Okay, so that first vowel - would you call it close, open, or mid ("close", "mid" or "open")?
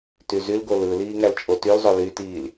close